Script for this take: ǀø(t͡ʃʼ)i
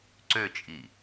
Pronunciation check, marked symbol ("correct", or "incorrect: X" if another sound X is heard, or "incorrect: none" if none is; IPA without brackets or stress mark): correct